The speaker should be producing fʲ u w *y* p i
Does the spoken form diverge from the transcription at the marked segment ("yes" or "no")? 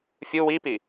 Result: yes